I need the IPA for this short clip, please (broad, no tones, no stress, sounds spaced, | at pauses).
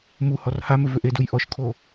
m u h ɔ r h a m ʏ v ʏ ʔ e d u j ʔ ɔ ʃ kʰ o